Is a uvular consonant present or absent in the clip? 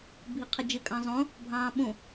present